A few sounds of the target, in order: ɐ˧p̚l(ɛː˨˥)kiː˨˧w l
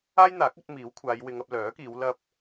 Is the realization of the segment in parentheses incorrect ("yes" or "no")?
yes